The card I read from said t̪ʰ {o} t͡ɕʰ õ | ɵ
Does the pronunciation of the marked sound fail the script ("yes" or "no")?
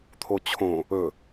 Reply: no